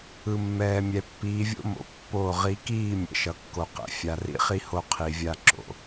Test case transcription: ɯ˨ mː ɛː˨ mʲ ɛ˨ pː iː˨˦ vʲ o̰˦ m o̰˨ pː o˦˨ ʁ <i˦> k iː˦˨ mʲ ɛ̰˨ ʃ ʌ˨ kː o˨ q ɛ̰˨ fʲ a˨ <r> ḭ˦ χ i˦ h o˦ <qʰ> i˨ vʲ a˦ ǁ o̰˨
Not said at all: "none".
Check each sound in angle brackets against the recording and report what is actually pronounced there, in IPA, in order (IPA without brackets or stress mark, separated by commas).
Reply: i˨˦, r, qʰ